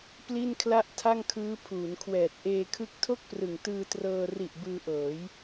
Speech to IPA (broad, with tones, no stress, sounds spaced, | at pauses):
p l i˥˩ n kʰ l a˥˩ ʔ tʰ a˥˩ ŋ kʰ ɯː˦˥ pʰ uː˩˦ n kʰ w ɛː˨˩ t̚ ʔ eː˧ kʰ ɯ˦˥ k̚ tʰ o˥˩ k̚ p r ɯ˨˩ ŋ t ɯː˧ t r ɤː˧ r i˨˩ ʔ b ɯː˧ ʔ ɤː˩˦ j